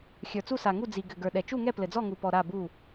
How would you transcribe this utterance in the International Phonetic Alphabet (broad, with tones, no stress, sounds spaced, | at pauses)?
xʲ ə˞˨ t͡s u˥˨ s a˨ ŋ u˥˨ d͡z i˨ ɡ ɘ˨ ɡ ə˞˨ ɗ ɛ˨ t͡ʃ u˥˨ ŋ ɛ˥˨ p l ɘ˨ d͡z ɔ˥˨ ŋ u˨ p ɔ˨ ɾ a˥˨ b u˥˨